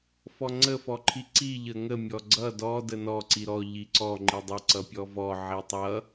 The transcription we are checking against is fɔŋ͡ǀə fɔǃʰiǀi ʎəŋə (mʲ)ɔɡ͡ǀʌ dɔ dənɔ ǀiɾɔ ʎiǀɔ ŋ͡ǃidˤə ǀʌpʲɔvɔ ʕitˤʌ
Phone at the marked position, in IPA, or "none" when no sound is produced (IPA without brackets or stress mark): mʲ